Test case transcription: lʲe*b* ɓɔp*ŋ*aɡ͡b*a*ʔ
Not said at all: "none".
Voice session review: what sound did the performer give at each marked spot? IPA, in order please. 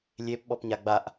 p, ɲ, a

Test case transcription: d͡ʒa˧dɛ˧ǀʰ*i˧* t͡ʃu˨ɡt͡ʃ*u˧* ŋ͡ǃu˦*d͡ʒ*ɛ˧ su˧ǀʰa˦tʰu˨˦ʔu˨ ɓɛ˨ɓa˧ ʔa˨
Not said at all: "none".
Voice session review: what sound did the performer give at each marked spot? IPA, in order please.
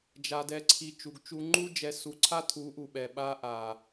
i˧, u˧, d͡ʒ

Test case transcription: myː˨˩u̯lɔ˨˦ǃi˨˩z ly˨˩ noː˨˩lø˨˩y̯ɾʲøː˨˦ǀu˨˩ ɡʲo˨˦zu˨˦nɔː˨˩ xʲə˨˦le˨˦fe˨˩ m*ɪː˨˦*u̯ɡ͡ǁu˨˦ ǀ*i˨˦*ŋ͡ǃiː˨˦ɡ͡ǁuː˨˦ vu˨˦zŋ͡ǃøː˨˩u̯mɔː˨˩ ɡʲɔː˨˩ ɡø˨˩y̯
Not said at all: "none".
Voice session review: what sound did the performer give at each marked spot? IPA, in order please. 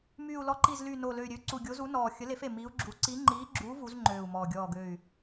iː˨˦, i˨˦

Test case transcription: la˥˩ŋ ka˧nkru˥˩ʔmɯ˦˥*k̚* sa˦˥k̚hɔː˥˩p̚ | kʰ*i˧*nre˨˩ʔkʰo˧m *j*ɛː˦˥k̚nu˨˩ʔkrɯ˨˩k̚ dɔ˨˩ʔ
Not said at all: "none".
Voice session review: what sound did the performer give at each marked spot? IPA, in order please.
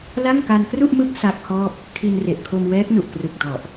k̚, i˧, w

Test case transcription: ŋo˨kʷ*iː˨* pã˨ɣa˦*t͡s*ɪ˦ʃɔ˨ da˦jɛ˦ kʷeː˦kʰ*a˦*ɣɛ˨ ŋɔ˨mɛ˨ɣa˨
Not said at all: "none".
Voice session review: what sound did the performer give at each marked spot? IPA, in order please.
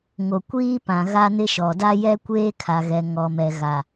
iː˦, n, a˨

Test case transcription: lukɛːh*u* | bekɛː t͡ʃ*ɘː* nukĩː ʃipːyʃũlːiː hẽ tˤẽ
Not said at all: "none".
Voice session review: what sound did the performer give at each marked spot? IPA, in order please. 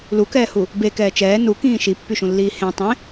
u, ɛː

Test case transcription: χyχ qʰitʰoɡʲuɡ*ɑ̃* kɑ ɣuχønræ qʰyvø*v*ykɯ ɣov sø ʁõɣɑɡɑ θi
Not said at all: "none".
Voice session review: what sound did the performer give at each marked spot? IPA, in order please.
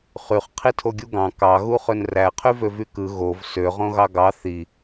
ɑ̃, v

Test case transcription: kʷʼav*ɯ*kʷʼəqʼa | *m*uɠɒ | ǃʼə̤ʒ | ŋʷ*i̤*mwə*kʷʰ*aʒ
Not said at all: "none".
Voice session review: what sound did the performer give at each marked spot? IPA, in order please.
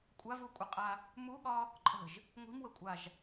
u, m, i̤, kʷʼ

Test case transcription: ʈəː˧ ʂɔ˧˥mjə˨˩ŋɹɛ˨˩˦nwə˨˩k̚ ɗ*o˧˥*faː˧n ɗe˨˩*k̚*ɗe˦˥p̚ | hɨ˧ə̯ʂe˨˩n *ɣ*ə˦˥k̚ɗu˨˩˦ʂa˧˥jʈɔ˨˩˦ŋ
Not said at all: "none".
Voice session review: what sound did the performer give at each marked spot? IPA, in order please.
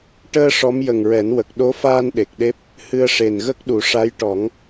o˧˥, k̚, ɣ

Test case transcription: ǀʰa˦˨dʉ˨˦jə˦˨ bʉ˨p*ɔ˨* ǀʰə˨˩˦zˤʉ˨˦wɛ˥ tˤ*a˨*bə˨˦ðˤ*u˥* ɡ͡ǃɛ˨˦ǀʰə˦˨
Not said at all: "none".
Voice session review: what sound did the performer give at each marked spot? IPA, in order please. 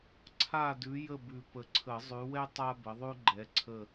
ə˨, a˥, ʉ˥

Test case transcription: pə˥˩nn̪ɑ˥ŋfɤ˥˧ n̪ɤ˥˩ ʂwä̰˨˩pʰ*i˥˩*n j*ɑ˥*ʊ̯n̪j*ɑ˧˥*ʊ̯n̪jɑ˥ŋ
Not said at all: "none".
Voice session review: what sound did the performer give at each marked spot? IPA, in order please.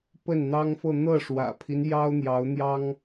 i˦, ɑ˥, ɑ˧˥

